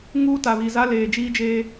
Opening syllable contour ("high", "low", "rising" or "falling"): high